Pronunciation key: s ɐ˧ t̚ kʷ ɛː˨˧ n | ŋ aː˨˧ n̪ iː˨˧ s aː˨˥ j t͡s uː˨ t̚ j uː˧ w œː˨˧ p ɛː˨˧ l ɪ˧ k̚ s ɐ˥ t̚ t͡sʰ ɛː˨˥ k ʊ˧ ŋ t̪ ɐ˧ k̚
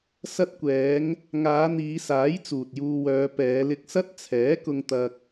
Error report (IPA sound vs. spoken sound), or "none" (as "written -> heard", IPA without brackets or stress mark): n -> ŋ